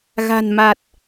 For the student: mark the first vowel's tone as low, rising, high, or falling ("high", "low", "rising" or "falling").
low